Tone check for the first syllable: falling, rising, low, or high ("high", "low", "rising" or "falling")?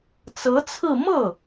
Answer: rising